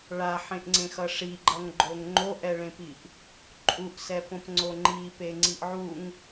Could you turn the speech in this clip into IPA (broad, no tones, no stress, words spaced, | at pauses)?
ɭaħẽʔŋ͡ǀẽxʌ ʂiɡ͡ǃʌŋɡ͡ǃoŋ ŋ͡ǃoʔɛɭẽpiʔ | ǃʼuʔsɛpõpŋ͡ǀo ŋ͡ǃipeŋ͡ǀiʔ ʕuŋ